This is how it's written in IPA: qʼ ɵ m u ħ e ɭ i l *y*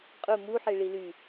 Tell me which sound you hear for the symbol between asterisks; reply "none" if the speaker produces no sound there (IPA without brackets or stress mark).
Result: y